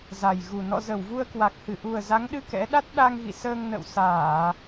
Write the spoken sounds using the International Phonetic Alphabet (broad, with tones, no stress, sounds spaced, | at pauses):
z a˨˩ j ɣ u˨˩ n ɔ̰˧˨ z ə˧˩ w v u˧ ə̯ k w a˨˩ k̚ h ɨ˧˩ ʔ u˨˩ ə̯ z a˨˦ ŋ ɗ ɨ˧ k ɛ̰˧˥ ɗ a˦˥ t̚ ɗ a˧ ŋ ɣ ḭ˧˨ s əː˧ ŋ n ə̰˧˨ w s aː˧˩˨